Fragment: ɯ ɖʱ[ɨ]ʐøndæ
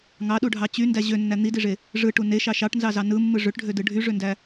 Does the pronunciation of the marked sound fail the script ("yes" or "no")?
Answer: yes